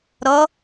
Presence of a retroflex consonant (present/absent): absent